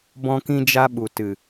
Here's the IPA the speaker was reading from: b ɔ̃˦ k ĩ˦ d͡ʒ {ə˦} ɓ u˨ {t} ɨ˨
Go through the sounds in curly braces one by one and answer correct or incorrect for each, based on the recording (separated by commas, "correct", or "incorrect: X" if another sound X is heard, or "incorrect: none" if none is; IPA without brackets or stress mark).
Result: incorrect: a˦, correct